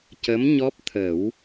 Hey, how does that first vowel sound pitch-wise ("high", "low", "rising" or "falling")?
rising